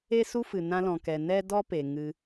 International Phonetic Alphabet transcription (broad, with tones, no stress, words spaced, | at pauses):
e˦su˦fɨ˨ nã˧lɔ̃˨kɛ˨ nɛ˦dɔ˦pe˨ŋɨ˧